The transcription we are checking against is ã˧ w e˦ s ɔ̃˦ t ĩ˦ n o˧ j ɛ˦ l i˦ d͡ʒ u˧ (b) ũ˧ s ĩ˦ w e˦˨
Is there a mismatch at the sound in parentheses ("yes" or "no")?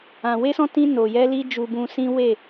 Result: no